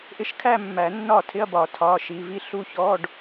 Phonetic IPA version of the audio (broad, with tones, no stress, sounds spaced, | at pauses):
ʔ ɪ˧˥ ʃ kʰ æ˥˧ mː æ˨˩˦ nː ɒ˥˩ tʰ ɪ˧˥˧ ɐ̯ b ɒ˨˩˦ tʰ ɒ˩˧˩ ʃ i˩˧˩ v i˥˩ ɬ u˥˩ ç ɔ˧˥˧ ɖ